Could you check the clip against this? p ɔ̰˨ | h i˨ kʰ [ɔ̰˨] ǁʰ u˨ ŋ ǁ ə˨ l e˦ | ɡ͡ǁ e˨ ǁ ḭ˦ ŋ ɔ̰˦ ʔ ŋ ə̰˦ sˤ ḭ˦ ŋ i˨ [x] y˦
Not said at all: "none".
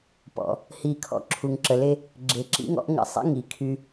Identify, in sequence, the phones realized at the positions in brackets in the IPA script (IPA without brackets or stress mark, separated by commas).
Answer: ɔ̰˨, kʰ